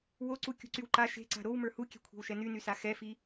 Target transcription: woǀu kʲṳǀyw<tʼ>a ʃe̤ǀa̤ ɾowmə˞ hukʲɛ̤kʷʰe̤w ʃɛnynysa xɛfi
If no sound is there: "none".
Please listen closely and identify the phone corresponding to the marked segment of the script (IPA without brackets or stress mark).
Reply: ǃ